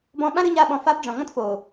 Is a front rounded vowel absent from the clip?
yes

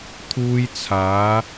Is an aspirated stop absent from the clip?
no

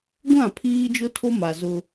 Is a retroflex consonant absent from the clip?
yes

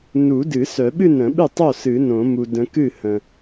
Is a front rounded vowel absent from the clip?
no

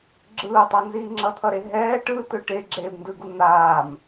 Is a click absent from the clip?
no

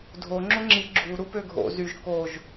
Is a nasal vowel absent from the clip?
yes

